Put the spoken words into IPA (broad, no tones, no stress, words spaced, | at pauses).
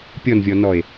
pʲɔnvʲɔnɔe̯